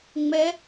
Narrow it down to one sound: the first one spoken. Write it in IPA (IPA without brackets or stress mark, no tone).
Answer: ŋ͡m